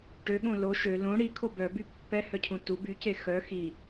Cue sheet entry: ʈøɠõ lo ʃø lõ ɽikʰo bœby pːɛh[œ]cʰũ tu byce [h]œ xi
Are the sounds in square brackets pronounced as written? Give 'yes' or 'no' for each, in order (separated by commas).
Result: yes, no